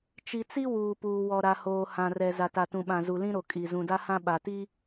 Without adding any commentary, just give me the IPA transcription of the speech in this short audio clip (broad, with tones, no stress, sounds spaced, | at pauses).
t͡ʃ i˨ t͡s i˦ w uː˨ p uː˨ w ɔ˨ ɾ a˨ h oː˨ h ã˨ r ɛ˨ z a˨ t a˨ t ũ˨ ɓ ã˨ z u˨ l ĩ˦ ɾ o˨ kʼ i˨ z ũ˨ d a˦ h ã˦ ɓ a˨ t i˦